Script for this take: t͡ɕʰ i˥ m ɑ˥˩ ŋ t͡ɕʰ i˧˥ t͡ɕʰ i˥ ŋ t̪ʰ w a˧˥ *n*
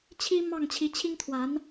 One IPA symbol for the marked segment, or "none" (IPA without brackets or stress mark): n